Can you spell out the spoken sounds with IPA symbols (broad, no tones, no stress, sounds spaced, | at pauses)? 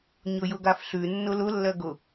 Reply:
ɲ ʊ j ʊ ɡ a f ɬ ʉ nː ʊ l ʊ lː ɜ ɡ ʊ